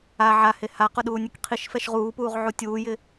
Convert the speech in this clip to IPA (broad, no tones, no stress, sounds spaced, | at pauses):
a ʕ a h e h a q ʊ ɗ uː nʲ e k qʰ i ʃ f ɛ ʃ ʁ uː p uː ʁ ʕ u tʲ uː j ɪ